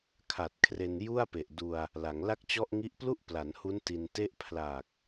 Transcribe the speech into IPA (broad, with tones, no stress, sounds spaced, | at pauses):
kʰ a˨˩ t̚ kʰ r e˧ n j u˥˩ a̯ p e˨˩ ʔ d u˧ a̯ | l a˩˦ ŋ l a˥˩ k̚ t͡ɕ ɔ˥˩ ʔ ŋ i˦˥ ʔ p l u˥˩ ʔ p l a˩˦ n h u˦˥ n t i˧ n t e˥˩ ʔ pʰ l a˨˩ k̚